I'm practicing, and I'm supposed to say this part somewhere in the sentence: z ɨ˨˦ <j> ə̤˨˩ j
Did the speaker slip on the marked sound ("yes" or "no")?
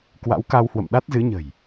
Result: yes